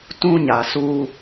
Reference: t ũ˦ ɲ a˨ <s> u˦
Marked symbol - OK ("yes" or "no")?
yes